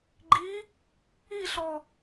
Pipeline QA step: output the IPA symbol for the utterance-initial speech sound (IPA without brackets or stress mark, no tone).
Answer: ɡ͡ǃ